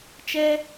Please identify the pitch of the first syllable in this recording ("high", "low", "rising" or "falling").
high